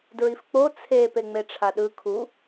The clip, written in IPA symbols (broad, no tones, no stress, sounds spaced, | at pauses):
d ɹ i f k͡p o t͡sʰ e p e ŋ͡m e ʈ͡ʂʰ a ɗ ɯ kʰ u